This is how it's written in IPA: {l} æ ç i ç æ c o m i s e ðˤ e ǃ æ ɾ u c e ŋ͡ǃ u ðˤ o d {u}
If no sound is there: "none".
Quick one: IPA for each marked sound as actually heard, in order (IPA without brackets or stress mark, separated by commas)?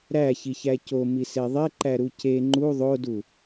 ɾ, u